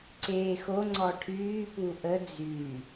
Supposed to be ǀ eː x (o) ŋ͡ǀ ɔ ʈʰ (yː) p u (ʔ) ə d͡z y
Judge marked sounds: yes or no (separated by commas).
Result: yes, yes, yes